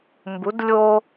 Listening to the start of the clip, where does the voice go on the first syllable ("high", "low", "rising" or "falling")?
rising